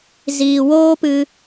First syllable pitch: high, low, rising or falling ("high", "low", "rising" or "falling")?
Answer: low